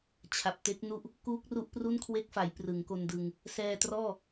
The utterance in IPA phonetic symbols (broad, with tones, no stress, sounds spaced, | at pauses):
t͡ɕʰ a˨˩ p̚ t e˦˥ k̚ n u˥˩ ʔ | k uː˦˥ k̚ r u˦˥ ʔ p r u˥˩ n kʰ w e˦˥ k̚ f a˩˦ j p r ɯ˩˦ ŋ k o˧ n d ɯ˧ ŋ | s ɛː˧ t r ɔː˥˩